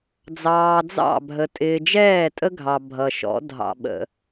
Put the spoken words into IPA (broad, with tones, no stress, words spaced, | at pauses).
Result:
d͡zɑː˨d͡zɑ̰˦˨bʱə˨ tʼɪː˨d͡ʒɛː˦˨tʼə˦ɡʱɑ˨ bʱʌ˨ʃɔ̰˨˦ dʱɑ̰˨ɓə̰˨